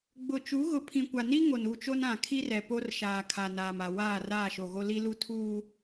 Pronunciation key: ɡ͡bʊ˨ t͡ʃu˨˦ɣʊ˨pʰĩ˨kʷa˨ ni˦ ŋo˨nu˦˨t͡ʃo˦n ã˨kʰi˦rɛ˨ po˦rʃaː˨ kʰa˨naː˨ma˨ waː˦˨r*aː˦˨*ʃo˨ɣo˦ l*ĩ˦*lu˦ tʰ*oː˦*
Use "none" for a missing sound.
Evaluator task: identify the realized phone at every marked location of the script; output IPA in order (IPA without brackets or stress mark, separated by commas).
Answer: aː˦˨, i˦, uː˦